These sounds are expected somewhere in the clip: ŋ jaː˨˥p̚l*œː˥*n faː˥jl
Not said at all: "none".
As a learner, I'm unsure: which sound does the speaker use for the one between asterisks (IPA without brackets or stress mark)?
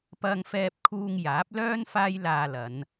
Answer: œː˥